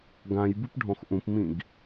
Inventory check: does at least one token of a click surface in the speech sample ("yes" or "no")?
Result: no